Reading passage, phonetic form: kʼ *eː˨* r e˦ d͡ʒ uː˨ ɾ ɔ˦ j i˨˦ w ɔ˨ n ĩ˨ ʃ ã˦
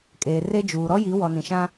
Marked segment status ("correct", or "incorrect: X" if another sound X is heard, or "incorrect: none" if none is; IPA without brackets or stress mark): correct